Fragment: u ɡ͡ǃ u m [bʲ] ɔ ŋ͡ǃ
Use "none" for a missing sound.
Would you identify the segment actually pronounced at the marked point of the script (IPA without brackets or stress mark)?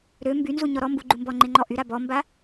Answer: b